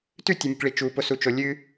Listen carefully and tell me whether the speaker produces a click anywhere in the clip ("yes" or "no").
no